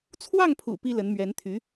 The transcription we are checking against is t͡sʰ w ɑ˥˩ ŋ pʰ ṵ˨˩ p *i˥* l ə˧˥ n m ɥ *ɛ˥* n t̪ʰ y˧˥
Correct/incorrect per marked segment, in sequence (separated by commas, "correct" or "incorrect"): correct, incorrect